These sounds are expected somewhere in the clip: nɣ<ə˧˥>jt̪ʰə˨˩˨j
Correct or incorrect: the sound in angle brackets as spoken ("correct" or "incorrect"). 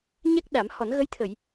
correct